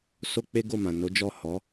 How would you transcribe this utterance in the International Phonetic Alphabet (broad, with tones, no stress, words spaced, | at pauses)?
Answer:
so˦k͡pe˦ɡo˦˨ mã˨no˨˦d͡ʒɔ˦˨ hɔ˨˦